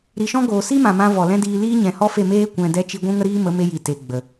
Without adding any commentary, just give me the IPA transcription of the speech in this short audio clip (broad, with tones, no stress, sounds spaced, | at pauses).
ɾ i˧ ʃ ɔ̃˦ ɡ oː˨ s i˦ m ã˨ m ã˧ v ɔ˨ l ɛ̃˦ d iː˧ l iː˦ ɲ ɛ̃˨ h ɔ˦ f e˦˨ m eː˦ kʷ ɛ̃˧ d ɛ˧ t͡ʃ i˧ ɡʷ ũ˦ ŋ ə˦ ɾ iː˦ m ə˨˦ m e˧ j i˨ t e˨ ɡ͡b ə˨